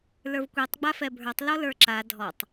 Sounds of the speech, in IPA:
l ə˞ v kʷ i tˤ ɡ͡b a f ɛ bʱ ə˞ tˤ l ɔ l ə˞ ǁ a dʱ ɔ tˤ

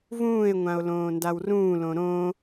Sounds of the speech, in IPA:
v ũː e̯ ŋʷ ã o̯ l õː n d a w r ũː l õ ɾ õ

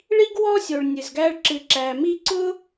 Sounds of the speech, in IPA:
ɭ i˦ ɡ w ɔ˦ sʲ o˩ ɭ nʲ ɨ˩ z ɡ æː˦ ɭ ǁ ɨ˨ ǁ æː˨ m i˦ ǀ ʊː˥

